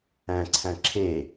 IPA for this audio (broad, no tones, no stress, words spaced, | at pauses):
æ̃ǀʰæ̃ ǁʰe